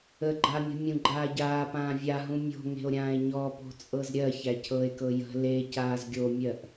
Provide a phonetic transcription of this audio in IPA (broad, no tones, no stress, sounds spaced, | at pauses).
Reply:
ə ɡ͡ǃ a mʲ ə̤ mʲ ũ ɡ͡ǃ aː ɟ aː p ãː vʲ a ɦ ũ mʲ o̤ ŋ e̤ o̯ ɾʲ ãː e̯ ɲ ɔ p o̤ t͡sʼ ɤ z ɾʲ ɜ ç æ cʰ ɤ e̯ k ɤ j ə̤ l e c aː z ɡʲ o mʲ ɜ ʔ